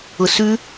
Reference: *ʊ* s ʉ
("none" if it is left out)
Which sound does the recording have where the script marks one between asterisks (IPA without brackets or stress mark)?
ʊ